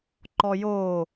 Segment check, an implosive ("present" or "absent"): absent